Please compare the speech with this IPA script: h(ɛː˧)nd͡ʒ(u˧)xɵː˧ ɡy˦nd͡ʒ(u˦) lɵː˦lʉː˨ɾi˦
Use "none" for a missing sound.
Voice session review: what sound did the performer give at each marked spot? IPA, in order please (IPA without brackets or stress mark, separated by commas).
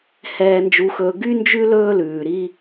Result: ɛː˧, u˧, ʉ˦